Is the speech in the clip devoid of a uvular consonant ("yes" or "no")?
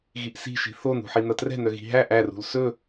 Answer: yes